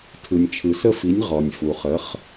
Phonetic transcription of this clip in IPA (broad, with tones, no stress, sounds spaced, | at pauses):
tʰ ɯ˩ nʲ t͡ʃʰ ɯ˩ s ə˦˨ f i˩˥ nʲ ʁ ɔ˩ nʲ f u˩ χ ə˩˥ χ